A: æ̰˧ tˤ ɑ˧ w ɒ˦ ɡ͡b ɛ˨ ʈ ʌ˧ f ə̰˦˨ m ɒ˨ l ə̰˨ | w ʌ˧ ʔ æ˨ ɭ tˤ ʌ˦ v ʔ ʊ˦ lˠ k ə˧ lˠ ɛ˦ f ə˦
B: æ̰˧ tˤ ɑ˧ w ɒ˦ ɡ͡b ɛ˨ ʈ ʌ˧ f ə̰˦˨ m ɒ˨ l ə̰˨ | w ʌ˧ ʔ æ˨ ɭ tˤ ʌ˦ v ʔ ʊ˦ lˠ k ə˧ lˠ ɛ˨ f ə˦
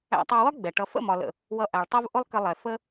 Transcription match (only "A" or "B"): B